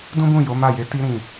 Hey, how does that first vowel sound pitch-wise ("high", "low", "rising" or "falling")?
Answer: high